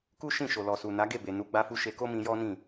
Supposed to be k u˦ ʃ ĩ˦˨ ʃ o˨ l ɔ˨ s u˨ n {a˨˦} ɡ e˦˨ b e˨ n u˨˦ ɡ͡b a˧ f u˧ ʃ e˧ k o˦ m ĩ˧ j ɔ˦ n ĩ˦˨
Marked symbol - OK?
yes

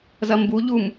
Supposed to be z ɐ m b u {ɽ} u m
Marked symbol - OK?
no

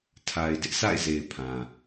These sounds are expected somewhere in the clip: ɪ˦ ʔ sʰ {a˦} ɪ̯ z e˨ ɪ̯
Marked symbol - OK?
no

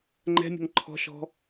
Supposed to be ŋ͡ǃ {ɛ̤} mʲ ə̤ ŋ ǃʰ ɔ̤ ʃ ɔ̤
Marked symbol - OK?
yes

